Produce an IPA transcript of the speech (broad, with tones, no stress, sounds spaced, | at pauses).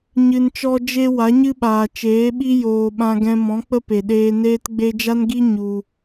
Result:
ɲ ɨ˧ n t͡ʃ ɔ˦ d͡ʒ e˦ w a˨˦ ɲ ɨ˦ ɓ aː˨ t͡ʃ eː˨˦ ɓ i˦ j oː˨ ɓ ã˧ ɡ ɛ̃˧ m ɔ̃˨˦ k͡p ə˦ p e˨ ɗ eː˧ n eː˧ t ɡ͡b e˧ d͡ʒ a˦ n ɡ i˦ ɲ u˧